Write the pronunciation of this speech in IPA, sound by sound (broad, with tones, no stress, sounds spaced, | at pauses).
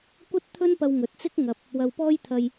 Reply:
kʷ ɐ˥ t̚ t̪ʰ ɵ˥ n p ɐ˧ w ŋ ɵ˨˥ t̚ t͡s ɪ˥ k̚ ŋ ɐ˨ p̚ | w ɐ˧ w p ɔː˥ j t̪ʰ ɐ˧ j